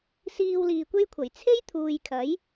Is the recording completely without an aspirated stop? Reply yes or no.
no